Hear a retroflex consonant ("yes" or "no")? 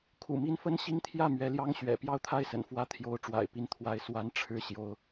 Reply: yes